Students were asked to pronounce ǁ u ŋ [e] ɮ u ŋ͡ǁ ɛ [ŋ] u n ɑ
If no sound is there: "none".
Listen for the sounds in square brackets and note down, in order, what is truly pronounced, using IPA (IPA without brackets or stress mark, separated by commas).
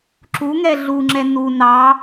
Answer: ɛ, n